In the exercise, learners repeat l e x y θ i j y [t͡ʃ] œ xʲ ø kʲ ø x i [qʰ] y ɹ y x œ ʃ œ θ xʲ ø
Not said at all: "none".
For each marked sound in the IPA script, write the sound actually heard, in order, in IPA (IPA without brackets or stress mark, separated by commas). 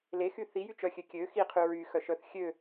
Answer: t͡ʃ, qʰ